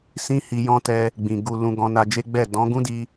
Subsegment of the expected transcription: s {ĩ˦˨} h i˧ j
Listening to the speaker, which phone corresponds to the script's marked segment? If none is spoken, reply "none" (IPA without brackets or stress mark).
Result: ĩ˦